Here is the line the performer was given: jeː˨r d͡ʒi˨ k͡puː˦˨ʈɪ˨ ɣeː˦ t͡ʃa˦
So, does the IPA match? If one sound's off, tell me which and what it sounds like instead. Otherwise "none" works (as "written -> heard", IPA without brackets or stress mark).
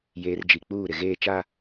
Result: ʈ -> ɾ